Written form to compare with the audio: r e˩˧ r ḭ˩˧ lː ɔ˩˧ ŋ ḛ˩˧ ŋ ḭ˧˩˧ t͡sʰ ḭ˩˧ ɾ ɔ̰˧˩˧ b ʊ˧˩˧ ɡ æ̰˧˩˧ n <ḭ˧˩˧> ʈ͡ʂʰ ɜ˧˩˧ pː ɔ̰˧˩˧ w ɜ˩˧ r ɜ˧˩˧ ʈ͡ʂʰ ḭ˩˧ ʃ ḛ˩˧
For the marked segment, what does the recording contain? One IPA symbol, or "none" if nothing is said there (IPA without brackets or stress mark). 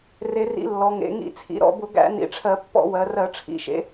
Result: ḭ˩˧